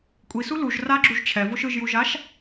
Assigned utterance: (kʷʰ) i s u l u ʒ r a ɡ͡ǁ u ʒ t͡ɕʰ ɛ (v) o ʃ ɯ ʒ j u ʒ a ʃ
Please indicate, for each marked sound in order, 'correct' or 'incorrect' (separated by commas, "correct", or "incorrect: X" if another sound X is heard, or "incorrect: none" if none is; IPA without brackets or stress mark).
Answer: incorrect: kʷʼ, correct